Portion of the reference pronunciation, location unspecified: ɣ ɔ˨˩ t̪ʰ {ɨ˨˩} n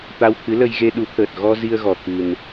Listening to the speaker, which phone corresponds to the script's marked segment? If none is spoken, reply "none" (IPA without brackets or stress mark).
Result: ɨ˨˩